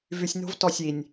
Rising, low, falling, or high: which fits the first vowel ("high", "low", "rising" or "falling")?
low